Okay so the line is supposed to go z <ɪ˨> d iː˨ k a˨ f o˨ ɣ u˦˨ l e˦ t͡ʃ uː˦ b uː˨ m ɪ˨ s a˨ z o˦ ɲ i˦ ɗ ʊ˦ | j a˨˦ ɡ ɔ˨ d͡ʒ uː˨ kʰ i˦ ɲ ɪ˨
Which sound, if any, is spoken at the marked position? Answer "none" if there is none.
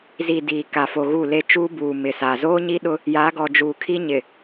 i˨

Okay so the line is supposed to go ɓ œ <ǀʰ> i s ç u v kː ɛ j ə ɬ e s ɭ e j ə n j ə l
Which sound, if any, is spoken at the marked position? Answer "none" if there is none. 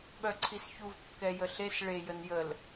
ǀʰ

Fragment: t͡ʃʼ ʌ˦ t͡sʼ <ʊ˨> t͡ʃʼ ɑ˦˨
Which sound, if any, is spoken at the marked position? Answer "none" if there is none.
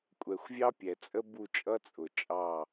ʊ˨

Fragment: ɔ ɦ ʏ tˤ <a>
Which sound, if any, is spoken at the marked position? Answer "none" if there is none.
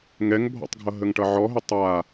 a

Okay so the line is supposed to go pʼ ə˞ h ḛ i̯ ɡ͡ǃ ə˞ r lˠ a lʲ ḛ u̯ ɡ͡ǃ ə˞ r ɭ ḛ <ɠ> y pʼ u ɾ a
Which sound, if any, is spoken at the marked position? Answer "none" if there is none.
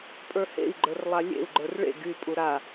ɡ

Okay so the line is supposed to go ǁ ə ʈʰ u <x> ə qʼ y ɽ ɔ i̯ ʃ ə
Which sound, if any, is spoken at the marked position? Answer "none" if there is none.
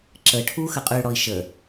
x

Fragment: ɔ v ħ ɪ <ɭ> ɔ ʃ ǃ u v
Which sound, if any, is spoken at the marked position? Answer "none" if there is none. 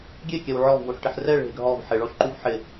ɭ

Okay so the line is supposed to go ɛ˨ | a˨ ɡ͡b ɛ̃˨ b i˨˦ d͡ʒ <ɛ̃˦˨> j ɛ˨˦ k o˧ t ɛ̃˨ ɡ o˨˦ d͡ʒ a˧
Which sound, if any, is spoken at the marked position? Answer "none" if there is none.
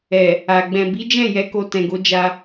ɛ̃˦˨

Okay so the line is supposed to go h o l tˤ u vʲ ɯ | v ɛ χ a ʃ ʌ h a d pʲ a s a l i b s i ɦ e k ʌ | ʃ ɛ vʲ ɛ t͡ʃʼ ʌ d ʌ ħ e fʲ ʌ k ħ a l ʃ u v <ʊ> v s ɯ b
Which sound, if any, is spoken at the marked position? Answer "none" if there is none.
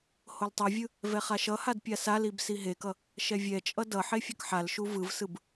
ɯ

